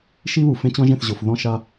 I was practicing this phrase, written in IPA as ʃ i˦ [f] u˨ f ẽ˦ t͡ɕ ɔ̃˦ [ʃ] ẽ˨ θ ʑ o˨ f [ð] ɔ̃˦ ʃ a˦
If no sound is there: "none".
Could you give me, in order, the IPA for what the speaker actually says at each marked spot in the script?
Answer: β, ʒ, ð

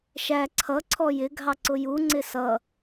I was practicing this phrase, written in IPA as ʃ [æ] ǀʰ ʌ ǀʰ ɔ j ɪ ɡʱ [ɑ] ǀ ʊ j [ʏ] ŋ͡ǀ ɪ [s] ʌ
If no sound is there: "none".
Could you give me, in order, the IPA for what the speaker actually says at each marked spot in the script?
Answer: æ, ɑ, u, s

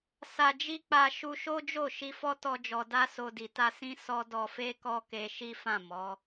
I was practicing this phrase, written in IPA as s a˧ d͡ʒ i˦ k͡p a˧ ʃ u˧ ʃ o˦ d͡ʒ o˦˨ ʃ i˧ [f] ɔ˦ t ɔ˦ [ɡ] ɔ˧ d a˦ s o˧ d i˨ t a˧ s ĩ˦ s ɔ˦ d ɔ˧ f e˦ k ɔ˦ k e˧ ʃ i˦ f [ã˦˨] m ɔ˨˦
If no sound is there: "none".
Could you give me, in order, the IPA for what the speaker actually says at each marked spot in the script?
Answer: f, d͡ʒ, ã˦˨

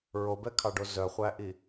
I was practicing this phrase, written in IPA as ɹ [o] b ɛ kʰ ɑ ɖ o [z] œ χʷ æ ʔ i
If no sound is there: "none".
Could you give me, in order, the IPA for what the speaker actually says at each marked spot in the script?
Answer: o, z

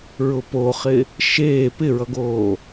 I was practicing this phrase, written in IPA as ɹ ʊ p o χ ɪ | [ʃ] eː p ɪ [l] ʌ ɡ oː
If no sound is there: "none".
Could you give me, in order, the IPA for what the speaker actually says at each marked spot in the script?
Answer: ʃ, ɹ

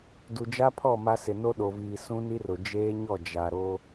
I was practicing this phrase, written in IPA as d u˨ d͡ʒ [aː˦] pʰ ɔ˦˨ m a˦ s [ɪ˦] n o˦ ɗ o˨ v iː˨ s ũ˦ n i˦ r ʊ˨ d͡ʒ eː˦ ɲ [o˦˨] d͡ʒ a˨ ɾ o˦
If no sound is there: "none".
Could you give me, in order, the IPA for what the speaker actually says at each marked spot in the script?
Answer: a˦, ɪ˨, ɔ˦˨

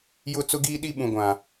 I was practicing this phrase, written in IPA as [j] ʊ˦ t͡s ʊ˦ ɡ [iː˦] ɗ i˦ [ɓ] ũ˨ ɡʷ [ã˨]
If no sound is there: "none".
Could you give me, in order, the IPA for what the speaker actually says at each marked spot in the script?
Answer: j, iː˦, ɓ, ã˨

